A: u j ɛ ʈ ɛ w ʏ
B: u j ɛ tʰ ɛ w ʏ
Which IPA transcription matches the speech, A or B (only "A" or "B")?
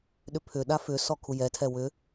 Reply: B